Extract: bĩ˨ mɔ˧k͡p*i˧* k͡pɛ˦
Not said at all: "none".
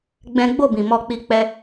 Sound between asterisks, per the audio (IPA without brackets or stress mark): i˧